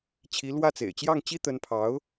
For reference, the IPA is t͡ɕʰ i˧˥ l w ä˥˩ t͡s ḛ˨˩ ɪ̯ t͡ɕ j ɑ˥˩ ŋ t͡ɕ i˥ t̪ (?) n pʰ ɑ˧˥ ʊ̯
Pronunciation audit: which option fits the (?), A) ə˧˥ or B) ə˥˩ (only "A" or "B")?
A